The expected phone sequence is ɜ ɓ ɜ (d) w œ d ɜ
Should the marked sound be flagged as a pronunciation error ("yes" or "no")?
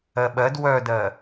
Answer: no